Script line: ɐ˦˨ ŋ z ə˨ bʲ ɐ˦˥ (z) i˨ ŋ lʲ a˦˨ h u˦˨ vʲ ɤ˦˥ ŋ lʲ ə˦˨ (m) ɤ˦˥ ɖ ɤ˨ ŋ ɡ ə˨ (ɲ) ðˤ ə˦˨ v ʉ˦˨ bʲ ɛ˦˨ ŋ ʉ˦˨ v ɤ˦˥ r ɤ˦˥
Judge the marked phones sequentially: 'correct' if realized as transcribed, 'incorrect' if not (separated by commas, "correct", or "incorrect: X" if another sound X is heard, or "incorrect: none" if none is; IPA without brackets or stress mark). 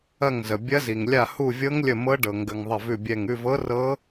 correct, correct, incorrect: ŋ